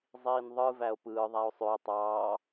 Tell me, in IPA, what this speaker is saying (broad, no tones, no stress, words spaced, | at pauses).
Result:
zˤiːnðˤɯ væo̯pɯː ðˤæo̯sˤøe̯ tˤɑː